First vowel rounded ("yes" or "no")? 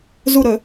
yes